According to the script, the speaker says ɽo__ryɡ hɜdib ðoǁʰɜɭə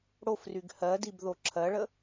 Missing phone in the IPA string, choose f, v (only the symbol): f